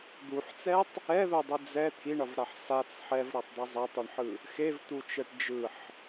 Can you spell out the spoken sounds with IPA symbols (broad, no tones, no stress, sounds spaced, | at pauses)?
d̪ u ħ t͡s ɛ tˤ | ɛ ð o dˤ u d͡z ɛ t̪ʰ i ɳ ʌ v ɾ a ħ s a t͡s ħ ɛ v ɾ ʌ tˤ d̪ ɛ zˤ e tˤ o ɳ ħ ɯ | x e v t̪ u t͡ʃ ɛ ʈ d͡ʒ ɯ ħ